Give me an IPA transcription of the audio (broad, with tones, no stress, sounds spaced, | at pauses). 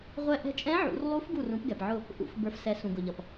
ʁʷ ɛ˧˥ ʔ ɛ̤˧˥ t͡ʃʼ ɛ̃˧˥ ʕ ṵ˩˧ r lˠ u˧˥ f ɡ u˧˩ r ũ˩˧ p ɡ ɛ˩ p ʕ ʊ˧˩ | ʔ ṵ˩˧ f b ə˞˩˧ f s ɛ˩˧ s ũ˩ ɡ ʊ˩ ʎ ʌ˩ p